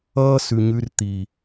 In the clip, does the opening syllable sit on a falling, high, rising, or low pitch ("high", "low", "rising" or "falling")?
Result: high